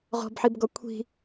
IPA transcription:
ʁ ɔ̤ b ħ i b ɡ ɔ kʷʰ i̤

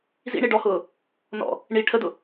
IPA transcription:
z ḭ ɳ i ɖ ɔ h ʊː | n ɔ̰ | ɳ i ʈʰ ə d ʊ

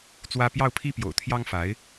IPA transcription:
t͡s w ä˥ p j ɑ˥˩ ʊ̯ pʰ i˥ p j o̰˨˩ ʊ̯ t̪ʰ j ɑ˥ ŋ f a˧˥ ɪ̯

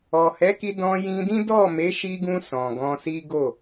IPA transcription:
ɔ˨ h ɛ˨˦ k i˧ d ɔ̃˧ j ĩ˧ d ĩ˦ d ɔ˦˨ m e˨˦ ʃ i˧ ɡ ũ˧ s ɔ̃˨ ɡ ɔ̃˧ s i˦ ɡ o˦˨

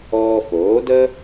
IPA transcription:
ɔː˧ f oː˩˥ d ə˥

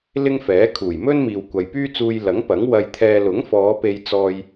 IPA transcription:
l ɪ˥ ŋ f ɛː˨˥ kʰ uː˨˩ j m ɵ˥ n m iː˨ w kʷ ɐ˨ j p yː˥ t͡s uː˧ j l ɐ˨˥ ŋ p ɐ˨˥ ŋ w ɐ˧ j t̪ʰ ɛː˧ l ʊ˨˥ ŋ f ɔː˨˧ p e˧ j t͡s ɔː˧ j

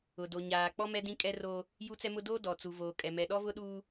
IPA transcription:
ʊ˨ d o˨ ɲ aː˨ k͡p ɔ˦ m ɛ˦ d ĩ˦ kʼ ɛ˦ r oː˦ | j u˦ t͡s ɛ˦ m ʊ˦ d oː˦ d ɔ˨ t͡s u˨ v oː˨ kʼ ɛ˨ m ɛ˨ ɗ ɔ˦ v ʊ˦ ɗ uː˦

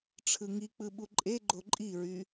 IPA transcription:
ʈ͡ʂʰ ɯ ŋ i k͡p ɯ ɓ u ǃʼ e ɡ͡ǃ o ǃʼ i ɹ y

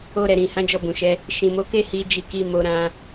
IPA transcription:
o˧ ɾ ɛ˨ ɾ ĩ˨ h ã˨˦ d͡ʒ ɔ˧ b ũ˨ ʃ ɛ˨˦ | ʃ ĩ˨ m o˨˦ k e˦ h i˧ d͡ʒ i˧ k i˧ m o˧ ɾ ã˦

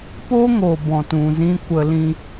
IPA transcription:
p o˦ ŋ o˨ b ɔ̃˨ t ũ˨ z ĩ˧ kʷ ə˧ l ĩ˧

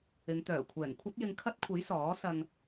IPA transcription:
ɪ˨˧ ŋ t̪ œː˨˩ kʷʰ ɛː˨˩ ŋ kʷʰ ɐ˥ t̚ j ɪ˧ ŋ kʰ ɐ˥ t̚ kʷʰ e˨˥ j s ɔː˨˥ s ɐ˧ ŋ

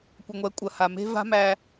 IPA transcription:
kʷ ɐ˨ ŋʷ ɛ˨˦ kʷʼ ɐ˨ h a˨ m e̤˦ v a̤˦ m æ˦

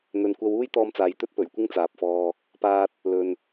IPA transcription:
n̪ ɵ˨ n kʷ ɐ˧ w uː˥ j t̪ ɔː˧ m t͡s aː˨ j t̪ ɵ˥ t̚ p ɵ˨˩ ɥ kʷ ɪ˥ ŋ t͡s aː˨ p̚ f ɔː˧ | p aː˧ t̚ | l ɵ˨ n

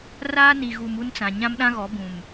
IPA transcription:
r aː˦ n i˨ ɣ u˨ m u˦ n t͡s ã˨ ɲ ã˦ m ɗ ã˦ ɣ ɔ˨˦ b ũ˨ m

